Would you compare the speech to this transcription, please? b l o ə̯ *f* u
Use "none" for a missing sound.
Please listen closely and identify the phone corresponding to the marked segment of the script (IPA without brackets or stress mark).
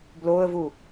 v